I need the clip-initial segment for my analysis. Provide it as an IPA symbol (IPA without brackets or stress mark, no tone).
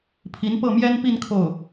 pʰ